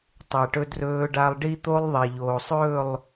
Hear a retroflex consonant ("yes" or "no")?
yes